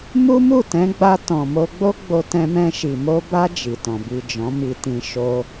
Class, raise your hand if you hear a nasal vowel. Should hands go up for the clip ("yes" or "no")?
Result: yes